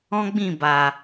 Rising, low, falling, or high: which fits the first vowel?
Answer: high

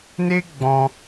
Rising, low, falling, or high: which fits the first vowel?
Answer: high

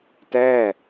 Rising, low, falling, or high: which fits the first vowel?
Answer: falling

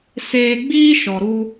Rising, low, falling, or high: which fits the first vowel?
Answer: low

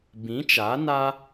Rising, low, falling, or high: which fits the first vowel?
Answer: rising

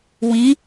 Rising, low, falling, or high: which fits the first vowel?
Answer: rising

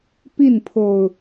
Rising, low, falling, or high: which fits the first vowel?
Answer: falling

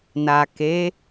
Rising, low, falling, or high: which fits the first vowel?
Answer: low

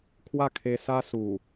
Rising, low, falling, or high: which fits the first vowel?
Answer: falling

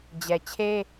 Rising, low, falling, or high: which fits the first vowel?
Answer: low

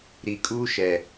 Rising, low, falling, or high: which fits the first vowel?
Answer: low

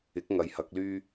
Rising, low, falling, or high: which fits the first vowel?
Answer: rising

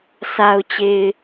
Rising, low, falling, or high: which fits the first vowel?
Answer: low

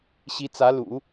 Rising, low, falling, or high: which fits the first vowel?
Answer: rising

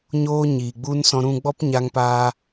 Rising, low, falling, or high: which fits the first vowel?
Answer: high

